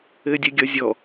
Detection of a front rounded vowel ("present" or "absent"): absent